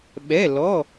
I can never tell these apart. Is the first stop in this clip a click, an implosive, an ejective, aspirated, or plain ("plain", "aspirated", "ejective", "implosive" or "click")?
implosive